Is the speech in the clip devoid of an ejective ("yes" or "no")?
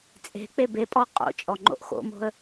no